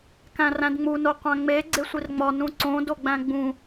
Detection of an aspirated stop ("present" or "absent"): absent